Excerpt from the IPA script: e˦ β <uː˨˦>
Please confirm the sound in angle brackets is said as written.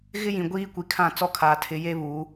yes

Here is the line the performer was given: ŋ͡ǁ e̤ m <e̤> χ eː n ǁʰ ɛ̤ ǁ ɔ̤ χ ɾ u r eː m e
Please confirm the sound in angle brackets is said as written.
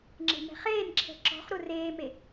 no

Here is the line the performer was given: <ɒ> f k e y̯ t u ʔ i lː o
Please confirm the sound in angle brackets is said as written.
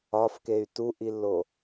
yes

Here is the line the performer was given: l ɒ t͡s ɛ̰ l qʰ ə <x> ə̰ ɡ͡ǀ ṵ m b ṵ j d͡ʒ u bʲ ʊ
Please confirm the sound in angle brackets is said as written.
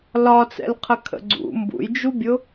no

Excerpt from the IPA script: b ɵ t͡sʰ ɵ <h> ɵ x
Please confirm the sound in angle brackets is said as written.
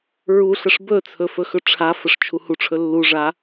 no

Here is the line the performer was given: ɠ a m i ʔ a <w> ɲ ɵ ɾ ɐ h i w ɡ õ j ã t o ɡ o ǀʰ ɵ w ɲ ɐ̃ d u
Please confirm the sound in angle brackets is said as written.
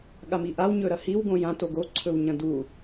yes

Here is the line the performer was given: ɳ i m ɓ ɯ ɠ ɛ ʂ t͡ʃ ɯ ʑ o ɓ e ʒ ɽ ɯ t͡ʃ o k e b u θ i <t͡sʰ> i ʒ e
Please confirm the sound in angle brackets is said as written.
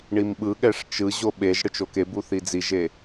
no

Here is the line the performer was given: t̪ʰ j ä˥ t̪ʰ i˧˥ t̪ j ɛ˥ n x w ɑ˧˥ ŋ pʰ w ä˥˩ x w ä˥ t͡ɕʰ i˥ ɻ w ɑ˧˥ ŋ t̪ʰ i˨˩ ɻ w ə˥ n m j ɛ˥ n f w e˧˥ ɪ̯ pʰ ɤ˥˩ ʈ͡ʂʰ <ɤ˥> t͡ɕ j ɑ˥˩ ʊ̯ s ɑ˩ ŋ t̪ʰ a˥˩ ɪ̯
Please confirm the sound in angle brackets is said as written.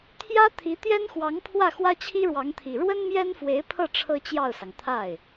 yes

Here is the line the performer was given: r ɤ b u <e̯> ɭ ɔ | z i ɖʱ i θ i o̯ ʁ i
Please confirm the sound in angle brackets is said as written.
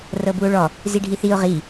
no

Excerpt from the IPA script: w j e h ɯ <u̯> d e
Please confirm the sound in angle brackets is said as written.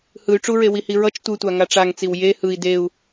no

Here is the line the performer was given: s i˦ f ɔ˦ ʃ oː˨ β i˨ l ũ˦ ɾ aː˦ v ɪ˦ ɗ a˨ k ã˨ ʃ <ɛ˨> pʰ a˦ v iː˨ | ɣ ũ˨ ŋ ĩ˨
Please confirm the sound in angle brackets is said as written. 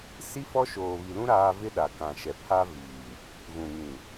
yes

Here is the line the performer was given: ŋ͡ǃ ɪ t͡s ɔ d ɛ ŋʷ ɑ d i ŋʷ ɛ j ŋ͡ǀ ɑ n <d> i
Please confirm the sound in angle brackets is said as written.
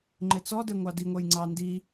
yes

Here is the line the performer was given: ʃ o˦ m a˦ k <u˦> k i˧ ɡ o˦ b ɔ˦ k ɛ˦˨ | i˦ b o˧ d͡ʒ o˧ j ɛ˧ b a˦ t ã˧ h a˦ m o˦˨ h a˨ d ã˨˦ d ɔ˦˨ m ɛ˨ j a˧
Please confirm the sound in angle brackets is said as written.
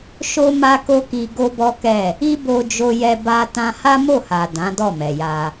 no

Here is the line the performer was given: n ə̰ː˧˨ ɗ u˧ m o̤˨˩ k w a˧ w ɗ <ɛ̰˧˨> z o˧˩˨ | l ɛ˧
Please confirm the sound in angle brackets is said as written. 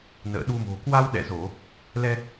yes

